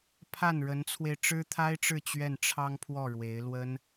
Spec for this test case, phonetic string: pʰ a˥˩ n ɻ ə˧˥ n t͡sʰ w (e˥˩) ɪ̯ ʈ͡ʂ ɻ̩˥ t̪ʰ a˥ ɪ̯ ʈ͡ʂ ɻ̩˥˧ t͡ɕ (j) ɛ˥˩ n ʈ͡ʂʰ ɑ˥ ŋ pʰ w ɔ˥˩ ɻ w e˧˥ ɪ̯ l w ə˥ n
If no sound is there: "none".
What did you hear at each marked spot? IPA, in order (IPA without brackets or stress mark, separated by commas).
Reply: e˧, ɥ